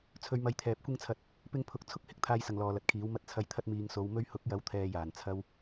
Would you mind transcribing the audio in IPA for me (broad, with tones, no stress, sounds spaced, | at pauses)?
t͡sʰ ɵ˨˧ ɥ m ɐ˧ j t̪ʰ ɛː˨ p̚ kʷ ɪ˥ ŋ t͡sʰ ɐ˧ t̚ | p ɪ˧ ŋ pʰ ʊ˨ k̚ t͡sʰ ʊ˥ k̚ h ɪ˨˥ k̚ t̪ʰ aː˨ j s ɐ˨˩ ŋ l ɔː˨ l ɐ˨˥ t̚ kʰ iː˨˥ w m ɐ˧ t̚ t͡sʰ ɐ˨ j t̪ʰ ɐ˧ t̚ m iː˨ ŋ s o˨˧ w m ɵ˧ ɥ h ʊ˨˥ k̚ j ɐ˨˥ w t̪ʰ ɛː˨ j aː˨˩ n t͡sʰ ɐ˧ w